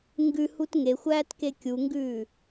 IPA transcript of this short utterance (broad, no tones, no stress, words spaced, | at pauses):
ŋɡʉhut ŋexʷæːt kekʲuŋɡʉː